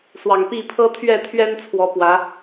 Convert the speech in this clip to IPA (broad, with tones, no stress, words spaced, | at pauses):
swɑ˨˩ŋpi˥˨ pʰɤ˦t̪ʰɥɛ˥˨ t̪ʰɥɛ˦nt͡sʰwɔ˨˦ pwä˨˦